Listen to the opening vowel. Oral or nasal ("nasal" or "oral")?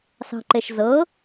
oral